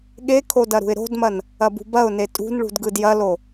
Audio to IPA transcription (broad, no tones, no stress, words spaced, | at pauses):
ɠekʰo dɐɾṳɪ̯ɾo̤dmɐn | ɐbṳbɐʊ̯ne tʼṳnɭṳd ɡɯdjɐlo